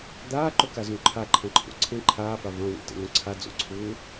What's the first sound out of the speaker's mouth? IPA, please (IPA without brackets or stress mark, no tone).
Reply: d̪